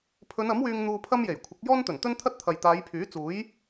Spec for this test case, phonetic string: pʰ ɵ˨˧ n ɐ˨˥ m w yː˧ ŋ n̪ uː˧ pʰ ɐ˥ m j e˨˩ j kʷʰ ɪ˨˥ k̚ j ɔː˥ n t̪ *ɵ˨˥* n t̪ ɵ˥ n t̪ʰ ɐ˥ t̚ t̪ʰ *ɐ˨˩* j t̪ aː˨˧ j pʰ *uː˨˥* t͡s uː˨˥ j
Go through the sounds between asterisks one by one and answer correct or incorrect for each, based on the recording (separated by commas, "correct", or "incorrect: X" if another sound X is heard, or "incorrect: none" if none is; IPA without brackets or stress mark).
incorrect: ɵ˨˩, incorrect: ɐ˨, incorrect: yː˨˥